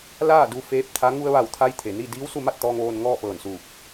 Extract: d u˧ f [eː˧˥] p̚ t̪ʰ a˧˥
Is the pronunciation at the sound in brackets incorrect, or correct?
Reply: correct